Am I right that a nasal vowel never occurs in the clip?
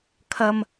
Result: yes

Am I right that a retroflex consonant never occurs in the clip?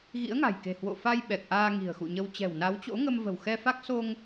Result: yes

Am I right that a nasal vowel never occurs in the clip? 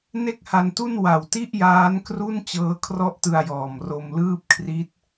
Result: yes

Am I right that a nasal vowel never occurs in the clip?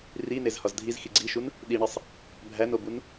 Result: yes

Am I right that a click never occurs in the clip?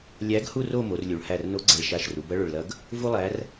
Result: no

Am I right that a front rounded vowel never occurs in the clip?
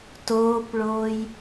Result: yes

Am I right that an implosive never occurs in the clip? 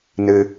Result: yes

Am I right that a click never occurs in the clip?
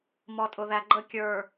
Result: no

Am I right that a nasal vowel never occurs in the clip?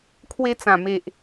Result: no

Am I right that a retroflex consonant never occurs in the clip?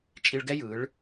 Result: no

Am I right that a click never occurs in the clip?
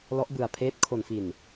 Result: yes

